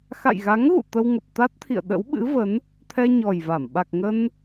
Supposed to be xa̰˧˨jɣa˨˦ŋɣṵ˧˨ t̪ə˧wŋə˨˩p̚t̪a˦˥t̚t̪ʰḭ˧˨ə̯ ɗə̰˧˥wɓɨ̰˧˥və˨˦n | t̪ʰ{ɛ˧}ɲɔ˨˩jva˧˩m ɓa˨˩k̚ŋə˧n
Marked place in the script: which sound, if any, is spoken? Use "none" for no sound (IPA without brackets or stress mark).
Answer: ɛ˧